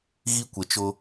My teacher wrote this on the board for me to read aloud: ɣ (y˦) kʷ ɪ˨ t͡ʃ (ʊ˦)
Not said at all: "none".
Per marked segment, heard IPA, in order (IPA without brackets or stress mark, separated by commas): i˦, ʊ˦